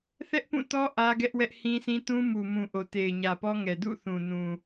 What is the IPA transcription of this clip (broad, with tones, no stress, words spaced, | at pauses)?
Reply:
θɛ˦ʔpũ˦˨tɔ˦ ʔä˦ɡɛ˦ʔ wɛ˦ʔhĩ˦sʰĩ˦ tũ˦mu˨mũ˨ ʔo˨te˨ɪ̯ɲä˨pɔ˦ ŋɛ˨dṵ˦˨θũ˨nũ˨